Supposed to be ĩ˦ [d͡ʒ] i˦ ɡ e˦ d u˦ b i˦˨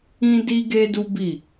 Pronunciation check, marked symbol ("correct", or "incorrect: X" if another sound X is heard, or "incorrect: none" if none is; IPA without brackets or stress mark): incorrect: d